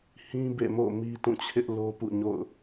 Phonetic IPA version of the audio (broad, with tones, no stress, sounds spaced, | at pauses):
h ĩ˦ b ḛ˦˨ m o̰˦˨ m i˦ t ũ˦˨ t͡ɕʰ ɪ˦ ʔ l o˦ p ṵ˦˨ ɲ o̰˦˨ ʊ̯